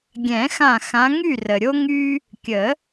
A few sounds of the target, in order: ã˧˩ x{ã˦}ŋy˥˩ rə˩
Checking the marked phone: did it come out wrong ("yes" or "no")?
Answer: yes